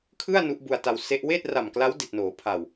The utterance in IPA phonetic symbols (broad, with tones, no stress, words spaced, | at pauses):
kʰɯ˥˩a̯ nu˦˥ʔbu˧a̯ta˧w se˦˥ʔ weː˥˩t̚ra˨˩mkla˦˥w di˨˩t̚noː˩˦pʰa˨˩w